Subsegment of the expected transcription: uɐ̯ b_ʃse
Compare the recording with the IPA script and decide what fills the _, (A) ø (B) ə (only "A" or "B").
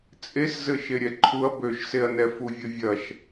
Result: A